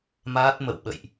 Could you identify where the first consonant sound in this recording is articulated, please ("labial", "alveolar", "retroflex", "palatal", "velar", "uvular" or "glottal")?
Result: labial